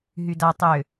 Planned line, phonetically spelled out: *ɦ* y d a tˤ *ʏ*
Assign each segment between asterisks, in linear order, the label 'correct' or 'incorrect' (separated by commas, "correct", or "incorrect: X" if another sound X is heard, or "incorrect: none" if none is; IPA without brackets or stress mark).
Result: correct, correct